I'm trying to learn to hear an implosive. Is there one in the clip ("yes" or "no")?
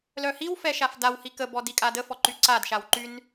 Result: no